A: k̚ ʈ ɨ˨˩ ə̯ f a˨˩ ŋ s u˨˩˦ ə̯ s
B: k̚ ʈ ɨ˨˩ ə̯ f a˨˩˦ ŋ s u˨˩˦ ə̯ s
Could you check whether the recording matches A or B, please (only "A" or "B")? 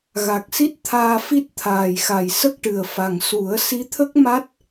A